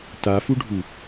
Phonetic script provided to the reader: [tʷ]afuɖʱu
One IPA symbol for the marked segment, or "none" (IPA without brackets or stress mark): t